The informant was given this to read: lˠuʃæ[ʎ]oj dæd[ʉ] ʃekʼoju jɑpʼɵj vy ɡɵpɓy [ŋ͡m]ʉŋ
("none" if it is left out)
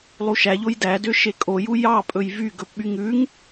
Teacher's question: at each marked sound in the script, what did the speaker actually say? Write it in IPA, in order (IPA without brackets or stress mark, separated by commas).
ʎ, ø, ŋ